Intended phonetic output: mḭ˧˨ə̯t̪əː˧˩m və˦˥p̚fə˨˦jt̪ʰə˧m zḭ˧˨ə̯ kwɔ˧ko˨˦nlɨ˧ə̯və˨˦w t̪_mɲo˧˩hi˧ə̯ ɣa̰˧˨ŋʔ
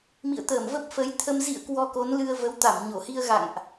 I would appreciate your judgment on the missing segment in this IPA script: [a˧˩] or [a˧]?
a˧˩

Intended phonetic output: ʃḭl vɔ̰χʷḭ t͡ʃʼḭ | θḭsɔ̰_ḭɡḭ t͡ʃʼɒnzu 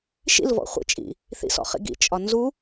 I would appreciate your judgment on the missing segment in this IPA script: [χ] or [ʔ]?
χ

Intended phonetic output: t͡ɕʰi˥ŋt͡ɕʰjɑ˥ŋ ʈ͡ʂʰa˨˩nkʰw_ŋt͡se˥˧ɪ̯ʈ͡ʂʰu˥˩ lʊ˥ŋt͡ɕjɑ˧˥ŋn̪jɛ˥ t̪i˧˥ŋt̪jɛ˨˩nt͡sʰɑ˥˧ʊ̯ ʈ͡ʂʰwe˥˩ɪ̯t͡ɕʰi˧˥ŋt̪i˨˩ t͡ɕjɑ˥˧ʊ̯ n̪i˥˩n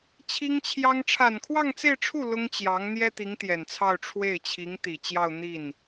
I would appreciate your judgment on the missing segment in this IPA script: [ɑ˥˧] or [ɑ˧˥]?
ɑ˥˧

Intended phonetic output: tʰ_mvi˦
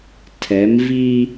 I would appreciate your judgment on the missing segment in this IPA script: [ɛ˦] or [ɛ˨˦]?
ɛ˨˦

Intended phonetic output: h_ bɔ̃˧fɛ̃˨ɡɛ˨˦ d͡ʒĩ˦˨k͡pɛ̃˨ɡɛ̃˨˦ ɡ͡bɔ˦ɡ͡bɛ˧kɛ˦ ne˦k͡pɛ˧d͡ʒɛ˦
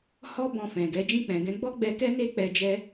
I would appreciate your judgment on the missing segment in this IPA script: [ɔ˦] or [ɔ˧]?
ɔ˧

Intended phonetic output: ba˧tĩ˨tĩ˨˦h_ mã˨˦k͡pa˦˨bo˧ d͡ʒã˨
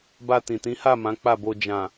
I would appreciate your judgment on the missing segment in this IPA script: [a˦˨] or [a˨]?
a˦˨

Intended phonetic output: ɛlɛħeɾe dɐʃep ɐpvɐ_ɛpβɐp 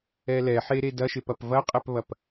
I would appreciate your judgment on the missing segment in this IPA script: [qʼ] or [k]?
qʼ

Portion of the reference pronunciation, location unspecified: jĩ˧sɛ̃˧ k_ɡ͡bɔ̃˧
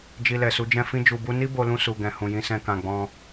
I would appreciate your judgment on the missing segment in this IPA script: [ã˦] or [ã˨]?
ã˨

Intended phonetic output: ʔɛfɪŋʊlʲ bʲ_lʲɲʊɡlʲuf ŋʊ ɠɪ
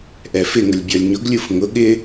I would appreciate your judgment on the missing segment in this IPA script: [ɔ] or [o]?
ɔ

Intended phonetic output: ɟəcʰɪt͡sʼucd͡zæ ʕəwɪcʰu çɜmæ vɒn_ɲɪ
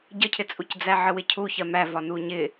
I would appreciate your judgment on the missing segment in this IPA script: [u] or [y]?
u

